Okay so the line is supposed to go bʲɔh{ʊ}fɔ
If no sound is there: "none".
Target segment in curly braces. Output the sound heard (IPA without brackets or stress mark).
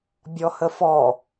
ə